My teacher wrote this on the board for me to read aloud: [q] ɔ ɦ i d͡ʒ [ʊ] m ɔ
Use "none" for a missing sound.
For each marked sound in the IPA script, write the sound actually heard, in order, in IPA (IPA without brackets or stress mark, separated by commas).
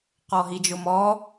q, ʊ